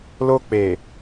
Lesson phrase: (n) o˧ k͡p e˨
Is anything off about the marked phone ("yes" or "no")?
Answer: yes